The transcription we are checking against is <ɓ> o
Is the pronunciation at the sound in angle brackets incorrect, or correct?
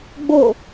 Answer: incorrect